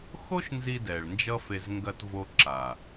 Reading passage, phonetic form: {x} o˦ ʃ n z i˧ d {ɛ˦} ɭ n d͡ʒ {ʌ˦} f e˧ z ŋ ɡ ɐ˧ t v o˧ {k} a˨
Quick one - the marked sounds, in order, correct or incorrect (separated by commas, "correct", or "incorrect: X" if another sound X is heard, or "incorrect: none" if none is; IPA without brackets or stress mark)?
correct, incorrect: ɛ˨, correct, incorrect: ǁ